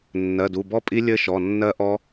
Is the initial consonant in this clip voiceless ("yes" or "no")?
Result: no